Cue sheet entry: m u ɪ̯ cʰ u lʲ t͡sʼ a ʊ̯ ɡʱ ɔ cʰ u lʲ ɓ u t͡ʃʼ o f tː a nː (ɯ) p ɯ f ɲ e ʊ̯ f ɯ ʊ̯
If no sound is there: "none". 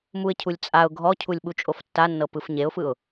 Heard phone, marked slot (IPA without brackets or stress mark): ɤ